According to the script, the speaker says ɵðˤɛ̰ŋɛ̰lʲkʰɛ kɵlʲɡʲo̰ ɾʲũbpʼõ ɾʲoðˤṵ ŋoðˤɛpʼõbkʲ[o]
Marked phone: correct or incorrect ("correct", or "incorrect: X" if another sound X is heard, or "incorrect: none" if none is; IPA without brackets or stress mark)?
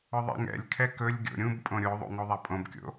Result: incorrect: o̰